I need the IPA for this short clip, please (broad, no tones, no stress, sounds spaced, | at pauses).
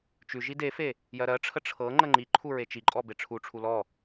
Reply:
t͡ʃ ʉ ʒ i d e f e | j ɜ ɾ ɜ ʈ͡ʂʰ ə ʈ͡ʂʰ ɤ ŋ͡ǃ ə ŋ͡ǃ i ǃʰ u ɹ e t͡ʃ i ǃʼ ɔ b e ʈ͡ʂʰ u ʈ͡ʂʰ u l ɔ